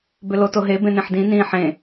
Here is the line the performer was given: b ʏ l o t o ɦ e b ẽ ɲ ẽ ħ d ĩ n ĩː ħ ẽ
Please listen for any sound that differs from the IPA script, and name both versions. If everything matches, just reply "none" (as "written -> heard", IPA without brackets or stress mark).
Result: ɲ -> n